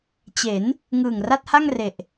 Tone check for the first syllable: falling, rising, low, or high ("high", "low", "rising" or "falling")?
rising